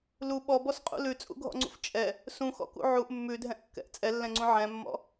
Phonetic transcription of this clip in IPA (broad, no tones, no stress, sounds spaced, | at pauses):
l u ɓ ɔ b ɔ s qʼ ṵ l ʉ t͡sʼ ṵ ɡʱ ɔ̰ ŋ͡ǀ ṵ f t͡ʃʼ ɛ | s ũ x ɔ̰ k ṵ ʕ u ʔ mː ʉ dʱ ɛ̃ ʔ kː ɛ̰ ʔ t͡sʼ ɛ lː ɛ̃ ŋ͡ǀ ũ ʕ ɛ̃ mː ɔ̰